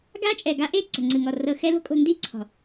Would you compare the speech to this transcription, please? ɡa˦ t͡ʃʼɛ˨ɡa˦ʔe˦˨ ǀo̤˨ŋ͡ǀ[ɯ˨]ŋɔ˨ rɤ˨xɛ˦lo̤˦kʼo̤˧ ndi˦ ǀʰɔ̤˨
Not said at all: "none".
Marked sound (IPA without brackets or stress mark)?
ɯ˨